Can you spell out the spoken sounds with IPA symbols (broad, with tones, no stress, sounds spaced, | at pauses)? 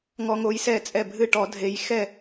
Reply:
ŋ ɔ˦ ŋ o˦ j s ɛ˥˩ t͡sʼ ɛ˥˩ bʱ ɨ˥˩ ʈ ɔ˨˩˦ dʱ e˨˩˦ j x ɛ˥˩